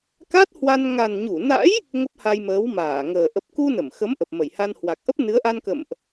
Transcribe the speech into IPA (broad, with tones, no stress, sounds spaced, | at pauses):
k a˦˥ t̚ h w a˧ n ŋ a˨˩ n ɲ u˧˩ n a̰˧˥ j | ŋ ə˦˥ p̚ h a˧ j m əː˨˦ w m aː˧˩ ŋ əː˨˩ ʔ ə˨˩ p̚ k u˧ n ə˧˩ m x ə˨˦ m ʔ ə˨˩ p̚ m ə˧˩ j h a˧ n h w a˨˩ k̚ ʔ ə˦˥ p̚ n ɨ˨˦ ə̯ ʔ a˧ n k ə̰˧˨ m ʔ